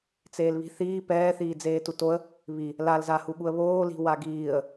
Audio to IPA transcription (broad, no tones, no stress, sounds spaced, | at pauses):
t͡s eː l β i̤ θ iː p ɛː θ iː d͡z eː t u t o ə̯ | β i | l a l z a h u ɠ u ə̯ β oː l i̤ w a ɡ iː ə̯